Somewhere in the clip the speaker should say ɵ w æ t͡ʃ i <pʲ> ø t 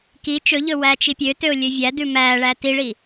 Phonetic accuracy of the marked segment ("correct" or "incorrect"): correct